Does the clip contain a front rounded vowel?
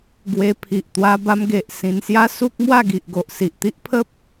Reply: no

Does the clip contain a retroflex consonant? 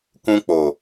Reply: no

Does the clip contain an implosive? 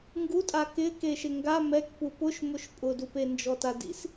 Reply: no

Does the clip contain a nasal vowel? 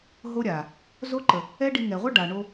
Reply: no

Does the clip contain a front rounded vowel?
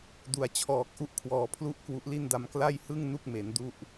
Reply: no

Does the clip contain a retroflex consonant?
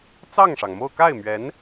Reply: yes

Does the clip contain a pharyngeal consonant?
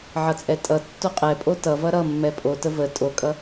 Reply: yes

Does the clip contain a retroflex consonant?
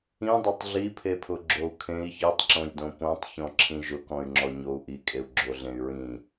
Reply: no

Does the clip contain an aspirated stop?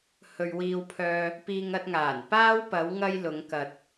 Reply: yes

